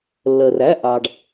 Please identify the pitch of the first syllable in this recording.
low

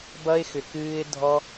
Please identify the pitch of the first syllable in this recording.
high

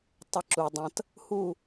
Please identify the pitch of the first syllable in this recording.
rising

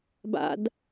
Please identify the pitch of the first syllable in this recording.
high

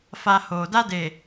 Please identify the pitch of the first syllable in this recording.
low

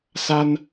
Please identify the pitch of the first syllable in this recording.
high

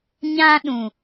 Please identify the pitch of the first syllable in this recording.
high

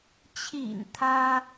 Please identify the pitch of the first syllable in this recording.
low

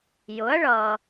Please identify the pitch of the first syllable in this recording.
rising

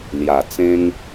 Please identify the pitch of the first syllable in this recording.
low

